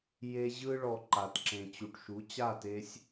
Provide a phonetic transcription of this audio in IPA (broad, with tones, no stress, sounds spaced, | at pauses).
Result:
j e˧ ʑ ɯ˦ ɭ ɔ˧ ǃ a˨ t ǁ ẽ˨ t͡ɕ u˨ ʈ ʃ u˨˦ t͡ɕ a˦˨ t e˧ sʲ